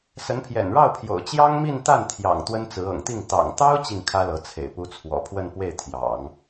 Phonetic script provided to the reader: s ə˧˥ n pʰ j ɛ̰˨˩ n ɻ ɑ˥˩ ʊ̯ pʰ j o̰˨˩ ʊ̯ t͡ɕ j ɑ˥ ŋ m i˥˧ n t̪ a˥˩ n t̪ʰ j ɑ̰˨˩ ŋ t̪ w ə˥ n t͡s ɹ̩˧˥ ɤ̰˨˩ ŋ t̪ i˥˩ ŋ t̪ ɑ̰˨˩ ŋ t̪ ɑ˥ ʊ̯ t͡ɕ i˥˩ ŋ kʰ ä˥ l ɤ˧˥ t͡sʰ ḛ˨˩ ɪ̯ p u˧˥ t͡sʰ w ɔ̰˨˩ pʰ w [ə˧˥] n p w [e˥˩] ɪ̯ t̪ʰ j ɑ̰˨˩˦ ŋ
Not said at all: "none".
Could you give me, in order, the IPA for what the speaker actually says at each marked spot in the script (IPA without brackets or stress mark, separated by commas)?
ə˥˧, e˥˩